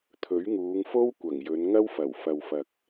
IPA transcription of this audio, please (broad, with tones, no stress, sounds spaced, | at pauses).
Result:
t̪ʰ ɵ˨˥ ɥ ŋ uː˨˧ ŋ f o˥ w kʷ ɐ˨˩ ŋ j ɵ˨˧ n ŋ ɐ˥ w f ɐ˨˩ w f ɐ˨ w f ɐ˨ k̚